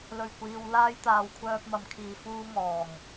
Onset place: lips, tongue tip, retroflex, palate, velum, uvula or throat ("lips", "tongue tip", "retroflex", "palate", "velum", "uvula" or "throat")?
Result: tongue tip